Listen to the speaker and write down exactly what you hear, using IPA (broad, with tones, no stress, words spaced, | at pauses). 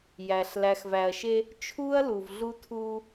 jæ˨ɬ læ˨xvæ˨ɐ̯ʃe˦ | t͡ʃʰuː˦ɐ̯lu˨vɮu˦tʰuː˦